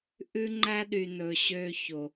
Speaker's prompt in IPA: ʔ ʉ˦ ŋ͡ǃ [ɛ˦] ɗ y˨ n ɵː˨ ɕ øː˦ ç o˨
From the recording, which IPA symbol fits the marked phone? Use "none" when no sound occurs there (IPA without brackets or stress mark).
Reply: æ˦